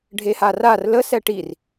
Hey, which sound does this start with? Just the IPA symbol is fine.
ɖʱ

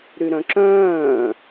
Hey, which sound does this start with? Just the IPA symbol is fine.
ɾ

